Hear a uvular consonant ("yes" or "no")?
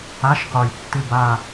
yes